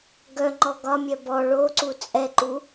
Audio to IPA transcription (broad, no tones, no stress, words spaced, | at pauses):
ɡœŋ͡ǃɔ ɡɒmʲœ bɔ ɭoǀu t͡sʼɛǃu